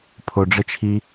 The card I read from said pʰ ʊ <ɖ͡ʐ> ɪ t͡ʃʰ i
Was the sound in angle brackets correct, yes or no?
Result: yes